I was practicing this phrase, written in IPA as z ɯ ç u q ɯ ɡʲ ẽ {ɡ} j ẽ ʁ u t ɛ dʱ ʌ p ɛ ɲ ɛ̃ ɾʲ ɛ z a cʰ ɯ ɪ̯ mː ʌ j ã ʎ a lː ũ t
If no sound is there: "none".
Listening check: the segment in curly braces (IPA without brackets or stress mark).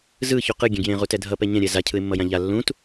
ɡ